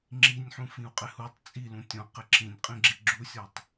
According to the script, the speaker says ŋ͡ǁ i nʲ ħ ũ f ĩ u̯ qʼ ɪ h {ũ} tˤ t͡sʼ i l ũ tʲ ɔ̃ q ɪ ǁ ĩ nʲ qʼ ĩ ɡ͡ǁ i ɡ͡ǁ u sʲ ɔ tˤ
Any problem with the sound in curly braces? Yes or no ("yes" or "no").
yes